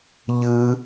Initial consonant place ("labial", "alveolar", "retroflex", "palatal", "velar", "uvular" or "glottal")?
palatal